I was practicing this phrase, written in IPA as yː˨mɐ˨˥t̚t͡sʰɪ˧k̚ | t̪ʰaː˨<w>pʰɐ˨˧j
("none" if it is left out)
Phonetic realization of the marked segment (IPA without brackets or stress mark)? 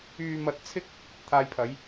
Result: j